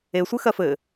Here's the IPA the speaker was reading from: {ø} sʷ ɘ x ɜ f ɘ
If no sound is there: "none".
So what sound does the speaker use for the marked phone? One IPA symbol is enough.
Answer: e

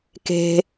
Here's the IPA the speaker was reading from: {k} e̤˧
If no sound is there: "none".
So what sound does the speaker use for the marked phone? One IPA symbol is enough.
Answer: k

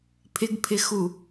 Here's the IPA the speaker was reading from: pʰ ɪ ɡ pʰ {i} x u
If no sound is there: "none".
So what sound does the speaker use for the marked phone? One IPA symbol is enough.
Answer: ɪ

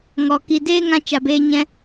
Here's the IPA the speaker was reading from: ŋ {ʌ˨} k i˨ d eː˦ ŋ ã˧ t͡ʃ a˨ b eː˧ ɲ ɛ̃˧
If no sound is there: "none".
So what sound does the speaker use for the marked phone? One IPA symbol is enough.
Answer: ɔ˨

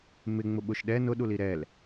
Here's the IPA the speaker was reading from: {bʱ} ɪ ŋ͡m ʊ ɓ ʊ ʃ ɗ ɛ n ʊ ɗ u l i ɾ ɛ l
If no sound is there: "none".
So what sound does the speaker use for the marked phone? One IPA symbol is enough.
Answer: m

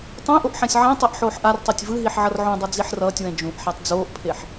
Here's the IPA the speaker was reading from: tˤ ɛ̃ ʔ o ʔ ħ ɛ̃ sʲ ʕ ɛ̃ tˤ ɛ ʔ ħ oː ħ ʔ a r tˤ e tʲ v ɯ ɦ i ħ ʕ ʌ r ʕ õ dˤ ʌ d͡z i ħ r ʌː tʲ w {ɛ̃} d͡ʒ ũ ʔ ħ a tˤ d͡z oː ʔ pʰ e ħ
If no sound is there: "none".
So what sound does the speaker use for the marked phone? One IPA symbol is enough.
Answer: ɛ̃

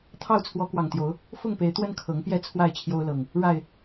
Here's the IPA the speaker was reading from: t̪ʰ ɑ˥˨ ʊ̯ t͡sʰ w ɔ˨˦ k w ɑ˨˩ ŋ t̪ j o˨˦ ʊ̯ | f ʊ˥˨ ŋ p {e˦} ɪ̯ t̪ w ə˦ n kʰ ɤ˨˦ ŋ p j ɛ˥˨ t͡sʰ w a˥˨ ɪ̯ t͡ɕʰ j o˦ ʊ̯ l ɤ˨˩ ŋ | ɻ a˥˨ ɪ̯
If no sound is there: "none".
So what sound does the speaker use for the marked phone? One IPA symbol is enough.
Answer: e˨˦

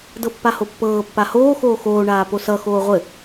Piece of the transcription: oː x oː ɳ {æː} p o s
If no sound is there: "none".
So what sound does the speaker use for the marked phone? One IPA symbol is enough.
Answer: aː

